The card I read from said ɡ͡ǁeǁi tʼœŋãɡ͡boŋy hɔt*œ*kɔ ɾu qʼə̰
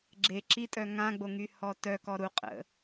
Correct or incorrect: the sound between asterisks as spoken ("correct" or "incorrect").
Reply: correct